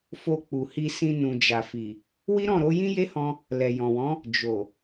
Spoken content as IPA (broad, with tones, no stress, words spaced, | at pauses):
fo˧k͡pu˨hi˧sĩ˧ nũ˨d͡ʒa˨fi˨ | wi˦ɾɔ̃˦˨ɾo˨˦ jĩ˦je˦hɔ̃˧ | lɛ˨jɔ̃˨wɔ̃˨˦ | d͡ʒo˨